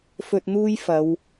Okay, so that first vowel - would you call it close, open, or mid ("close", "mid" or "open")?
mid